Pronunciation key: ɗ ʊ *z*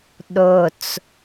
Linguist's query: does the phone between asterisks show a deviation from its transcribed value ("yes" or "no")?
yes